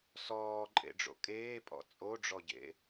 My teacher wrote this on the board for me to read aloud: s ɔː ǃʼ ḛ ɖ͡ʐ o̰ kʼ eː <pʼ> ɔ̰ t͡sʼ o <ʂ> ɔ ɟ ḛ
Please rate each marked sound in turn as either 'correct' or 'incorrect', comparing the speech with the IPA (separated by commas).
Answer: correct, incorrect